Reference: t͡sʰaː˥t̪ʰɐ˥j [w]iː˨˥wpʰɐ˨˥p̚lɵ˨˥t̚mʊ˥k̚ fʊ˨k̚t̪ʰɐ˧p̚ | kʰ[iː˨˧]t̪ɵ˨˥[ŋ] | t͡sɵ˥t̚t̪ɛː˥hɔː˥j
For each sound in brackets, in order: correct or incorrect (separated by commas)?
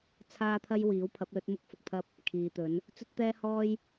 correct, correct, incorrect